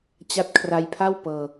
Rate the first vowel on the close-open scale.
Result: open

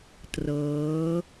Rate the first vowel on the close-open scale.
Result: mid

